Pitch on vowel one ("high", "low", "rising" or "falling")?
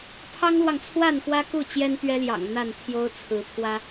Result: high